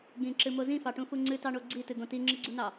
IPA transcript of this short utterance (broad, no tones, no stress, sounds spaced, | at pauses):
ɡ ĩ ǁ ɨ m o z ĩ f ɑ ʈ ũ f u ŋ͡ǀ ɨ t ɑ ɳ o ɡ͡ǀ i t ɨ ɡ õ t i ŋ͡ǁ ɨ ɡ͡ǀ u n ɑ